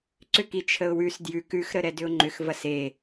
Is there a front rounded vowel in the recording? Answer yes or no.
yes